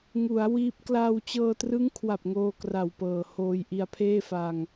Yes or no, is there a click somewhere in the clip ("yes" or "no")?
no